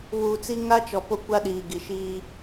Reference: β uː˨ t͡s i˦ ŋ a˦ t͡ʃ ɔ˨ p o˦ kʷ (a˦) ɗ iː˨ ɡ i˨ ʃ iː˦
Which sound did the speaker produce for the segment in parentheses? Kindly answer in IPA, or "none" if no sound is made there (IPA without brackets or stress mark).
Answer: a˦